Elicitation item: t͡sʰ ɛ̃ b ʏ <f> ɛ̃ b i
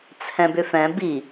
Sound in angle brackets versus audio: correct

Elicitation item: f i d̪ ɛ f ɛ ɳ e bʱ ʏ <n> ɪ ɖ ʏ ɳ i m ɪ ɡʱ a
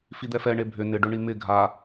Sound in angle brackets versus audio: correct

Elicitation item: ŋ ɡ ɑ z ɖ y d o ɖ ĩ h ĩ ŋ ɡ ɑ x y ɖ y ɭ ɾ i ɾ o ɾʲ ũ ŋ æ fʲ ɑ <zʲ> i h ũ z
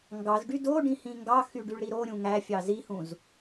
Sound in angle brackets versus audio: incorrect: z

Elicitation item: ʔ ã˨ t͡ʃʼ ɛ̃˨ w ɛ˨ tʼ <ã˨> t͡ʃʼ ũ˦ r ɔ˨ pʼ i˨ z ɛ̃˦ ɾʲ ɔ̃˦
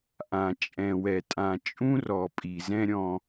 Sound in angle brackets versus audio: correct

